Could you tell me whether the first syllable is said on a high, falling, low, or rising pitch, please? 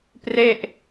falling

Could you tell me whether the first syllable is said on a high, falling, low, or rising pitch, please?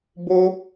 high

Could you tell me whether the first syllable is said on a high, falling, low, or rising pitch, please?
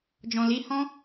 low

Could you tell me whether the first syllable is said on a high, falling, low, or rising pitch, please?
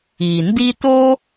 low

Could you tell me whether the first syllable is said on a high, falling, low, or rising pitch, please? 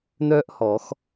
high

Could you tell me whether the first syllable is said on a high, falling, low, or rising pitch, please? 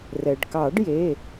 low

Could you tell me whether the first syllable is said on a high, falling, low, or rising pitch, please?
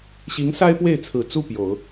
rising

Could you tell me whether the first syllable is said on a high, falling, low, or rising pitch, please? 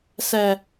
low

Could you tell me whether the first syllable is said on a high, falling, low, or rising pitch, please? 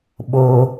high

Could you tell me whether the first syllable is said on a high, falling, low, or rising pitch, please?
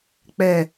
low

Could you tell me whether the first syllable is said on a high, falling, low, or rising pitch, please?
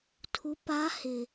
rising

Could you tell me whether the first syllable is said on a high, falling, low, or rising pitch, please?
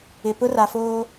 low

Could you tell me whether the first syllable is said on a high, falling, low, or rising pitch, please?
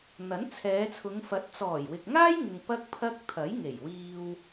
rising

